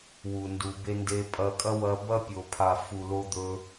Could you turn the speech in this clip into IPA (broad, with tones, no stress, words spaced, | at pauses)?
wu˨ndu˨be˦ nde˧pʼɐ˧kʼɐ˦ wɐ˧bɐ˦pʲo˨ pʰa˨fu˨lo˧d̪ɵ˧